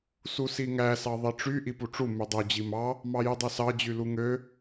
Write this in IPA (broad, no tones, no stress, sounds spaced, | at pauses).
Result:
s u s i ŋ æ s ɑ ðˤ i ʈ͡ʂ y ʔ i p u ʈ͡ʂ u m y dˤ u d͡ʑ i m ɑ | m ɑ j y dˤ ø s ɑ d͡ʑ y l u ŋ ø